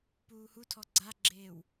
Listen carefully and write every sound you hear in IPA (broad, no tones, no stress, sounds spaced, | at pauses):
p uː h u tʰ ɔ ɡ͡ǀ a ɡ͡ǁ eː w